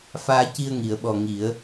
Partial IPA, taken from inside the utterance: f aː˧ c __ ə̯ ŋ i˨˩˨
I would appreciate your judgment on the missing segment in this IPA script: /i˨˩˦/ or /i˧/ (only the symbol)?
i˧